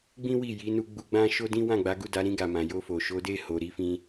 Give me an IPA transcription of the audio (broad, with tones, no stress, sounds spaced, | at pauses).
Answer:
ɡ͡b ĩ˦ w i˦˨ j i˨˦ n u˧ ɡ͡b u˧ ɡ͡b ã˦ ʃ o˦ d ĩ˦ w ã˦˨ ɡ͡b a˨˦ ɡ u˦˨ d a˨˦ ɾ ĩ˧ ɡ a˨ m ã˨ j o˧ f o˨ ʃ o˨˦ d e˦˨ h o˨ ɾ i˧ f ĩ˧